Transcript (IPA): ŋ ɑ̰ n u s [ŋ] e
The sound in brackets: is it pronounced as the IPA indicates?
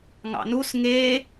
yes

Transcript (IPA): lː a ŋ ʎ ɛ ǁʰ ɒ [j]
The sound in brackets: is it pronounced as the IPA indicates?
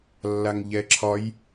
yes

